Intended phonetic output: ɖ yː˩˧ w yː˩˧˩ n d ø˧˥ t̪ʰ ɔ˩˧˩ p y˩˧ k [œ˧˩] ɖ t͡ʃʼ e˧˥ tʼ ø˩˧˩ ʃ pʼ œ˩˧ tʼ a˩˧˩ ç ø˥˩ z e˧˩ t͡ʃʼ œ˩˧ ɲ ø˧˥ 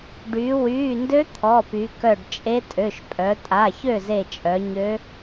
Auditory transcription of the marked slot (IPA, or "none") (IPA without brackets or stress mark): œ˧˩